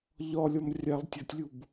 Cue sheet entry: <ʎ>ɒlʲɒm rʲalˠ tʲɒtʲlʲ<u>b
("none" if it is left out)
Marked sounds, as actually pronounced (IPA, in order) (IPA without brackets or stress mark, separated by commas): ʎ, u